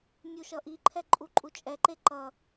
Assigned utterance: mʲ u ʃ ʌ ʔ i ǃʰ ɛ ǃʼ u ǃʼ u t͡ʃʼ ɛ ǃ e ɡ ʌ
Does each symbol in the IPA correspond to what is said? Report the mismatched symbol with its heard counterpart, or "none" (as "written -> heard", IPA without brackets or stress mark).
ɡ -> ǃ